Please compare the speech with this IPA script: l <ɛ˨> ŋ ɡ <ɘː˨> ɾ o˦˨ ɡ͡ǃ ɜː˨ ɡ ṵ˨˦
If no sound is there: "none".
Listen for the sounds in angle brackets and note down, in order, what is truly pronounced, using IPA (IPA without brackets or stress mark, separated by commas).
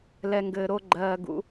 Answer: ɛ˨, ɘː˨